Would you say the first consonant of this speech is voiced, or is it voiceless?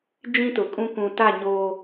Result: voiced